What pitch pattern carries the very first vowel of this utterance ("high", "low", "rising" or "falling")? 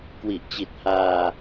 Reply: low